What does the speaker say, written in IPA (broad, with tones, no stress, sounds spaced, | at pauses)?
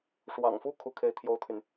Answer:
ʂ w ɑ̰˨˩ ŋ f u˥˩ kʰ u˥ kʰ e˥˩ ɪ̯ t̪ʰ j o˥ ʊ̯ t̪ʰ y˨ n